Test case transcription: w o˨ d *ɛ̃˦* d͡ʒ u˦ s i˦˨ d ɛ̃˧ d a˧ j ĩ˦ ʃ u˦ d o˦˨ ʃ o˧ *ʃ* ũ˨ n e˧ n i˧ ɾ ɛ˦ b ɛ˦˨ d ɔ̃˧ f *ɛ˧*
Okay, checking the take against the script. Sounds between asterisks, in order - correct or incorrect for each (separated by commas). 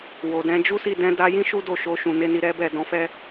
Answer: incorrect, correct, incorrect